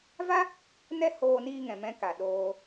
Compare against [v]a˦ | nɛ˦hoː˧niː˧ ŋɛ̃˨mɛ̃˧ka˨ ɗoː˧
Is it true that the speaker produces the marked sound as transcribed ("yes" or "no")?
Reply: yes